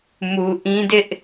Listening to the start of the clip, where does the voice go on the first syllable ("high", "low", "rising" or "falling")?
low